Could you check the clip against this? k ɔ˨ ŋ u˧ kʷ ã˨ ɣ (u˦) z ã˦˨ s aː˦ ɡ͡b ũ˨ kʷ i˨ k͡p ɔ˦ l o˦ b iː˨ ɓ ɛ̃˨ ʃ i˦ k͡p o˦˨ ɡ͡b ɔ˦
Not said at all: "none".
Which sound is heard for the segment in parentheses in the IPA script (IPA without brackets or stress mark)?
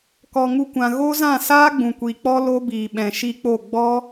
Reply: o˦